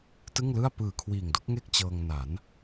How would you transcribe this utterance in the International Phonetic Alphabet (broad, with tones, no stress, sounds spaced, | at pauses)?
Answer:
t ɯ˥˩ ŋ l ɯ˥˩ a̯ p ɯː˨˩ kʰ w iː˨˩ ŋ d o˦˥ k̚ ŋ e˥˩ k̚ t͡ɕ ɤː˧ ŋ n a˩˦ n